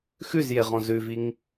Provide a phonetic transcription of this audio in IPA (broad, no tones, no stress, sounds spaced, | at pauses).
x ʉ z j e ʁ ɔ̃ z ʉ v i ŋ